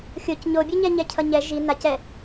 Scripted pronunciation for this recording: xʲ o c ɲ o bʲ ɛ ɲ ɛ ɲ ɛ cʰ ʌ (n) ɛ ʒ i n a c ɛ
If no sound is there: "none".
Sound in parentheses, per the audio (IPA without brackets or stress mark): ɲ